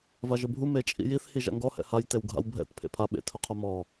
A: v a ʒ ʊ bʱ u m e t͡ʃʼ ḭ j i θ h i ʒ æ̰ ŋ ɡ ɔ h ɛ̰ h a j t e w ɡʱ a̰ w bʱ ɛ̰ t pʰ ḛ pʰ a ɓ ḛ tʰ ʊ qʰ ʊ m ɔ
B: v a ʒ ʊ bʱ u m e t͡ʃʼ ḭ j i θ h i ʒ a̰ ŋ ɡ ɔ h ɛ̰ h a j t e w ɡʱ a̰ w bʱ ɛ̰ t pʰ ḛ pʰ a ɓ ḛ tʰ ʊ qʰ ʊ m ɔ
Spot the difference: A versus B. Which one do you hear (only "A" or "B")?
B